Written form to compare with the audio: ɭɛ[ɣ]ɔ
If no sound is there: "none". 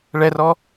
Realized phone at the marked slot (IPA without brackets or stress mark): r